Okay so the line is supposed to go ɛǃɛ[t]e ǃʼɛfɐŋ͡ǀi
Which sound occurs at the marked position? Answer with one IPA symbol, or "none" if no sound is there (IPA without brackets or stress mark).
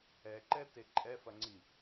t